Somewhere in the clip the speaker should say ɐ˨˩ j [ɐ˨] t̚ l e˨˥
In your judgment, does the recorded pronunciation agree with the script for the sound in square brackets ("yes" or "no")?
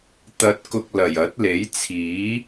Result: no